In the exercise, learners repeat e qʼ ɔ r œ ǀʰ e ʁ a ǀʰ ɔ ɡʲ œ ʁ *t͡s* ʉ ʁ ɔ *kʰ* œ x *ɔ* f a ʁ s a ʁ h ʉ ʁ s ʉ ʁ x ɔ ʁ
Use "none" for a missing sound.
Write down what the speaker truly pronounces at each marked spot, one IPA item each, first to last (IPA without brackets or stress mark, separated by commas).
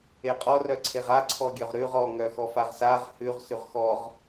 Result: ɾ, ŋ, ɔ